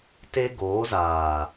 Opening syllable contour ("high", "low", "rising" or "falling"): high